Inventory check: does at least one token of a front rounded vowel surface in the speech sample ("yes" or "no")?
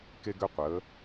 yes